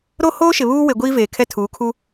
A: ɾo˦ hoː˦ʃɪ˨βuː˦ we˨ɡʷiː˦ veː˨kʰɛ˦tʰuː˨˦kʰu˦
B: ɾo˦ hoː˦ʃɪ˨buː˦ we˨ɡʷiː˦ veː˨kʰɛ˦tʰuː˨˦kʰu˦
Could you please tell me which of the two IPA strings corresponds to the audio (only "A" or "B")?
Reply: A